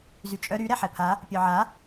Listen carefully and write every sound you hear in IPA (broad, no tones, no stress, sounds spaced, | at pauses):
z y t͡ʃʼ œ ɾ y ɾ ɛ ħ ɛ pʰ a | pʲ œ ʕ a